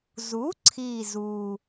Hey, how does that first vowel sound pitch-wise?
rising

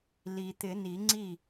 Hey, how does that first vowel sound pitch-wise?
low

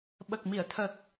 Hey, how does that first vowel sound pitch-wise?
low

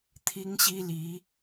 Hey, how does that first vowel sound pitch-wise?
high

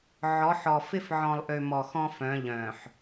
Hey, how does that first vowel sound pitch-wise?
rising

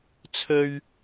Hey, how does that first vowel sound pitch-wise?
high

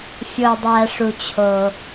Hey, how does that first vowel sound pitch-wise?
low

